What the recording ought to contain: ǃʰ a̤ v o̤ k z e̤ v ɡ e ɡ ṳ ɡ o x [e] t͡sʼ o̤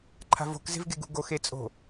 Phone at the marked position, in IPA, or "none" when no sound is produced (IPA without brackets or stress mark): e